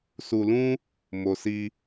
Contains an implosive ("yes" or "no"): no